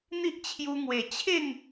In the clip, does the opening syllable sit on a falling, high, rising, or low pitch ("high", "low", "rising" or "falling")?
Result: high